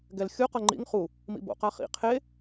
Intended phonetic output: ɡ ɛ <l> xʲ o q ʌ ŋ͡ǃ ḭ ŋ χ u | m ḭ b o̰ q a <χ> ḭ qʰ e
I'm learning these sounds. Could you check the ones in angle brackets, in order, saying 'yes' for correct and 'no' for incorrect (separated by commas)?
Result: yes, yes